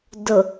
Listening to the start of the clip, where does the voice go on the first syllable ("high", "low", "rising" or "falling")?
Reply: low